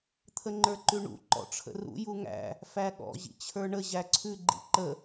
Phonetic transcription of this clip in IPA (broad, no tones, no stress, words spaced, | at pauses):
t̪ʰəŋ͡ǃə˞ǃʉɳṵ ǃɔ̰ʈ͡ʂʰə̰rṵ juŋæ̰ | fæɠɔ̰ ʑḭt͡ɕʰə˞ɳə ʑæǀʰʉ ɡ͡ǃḭǃə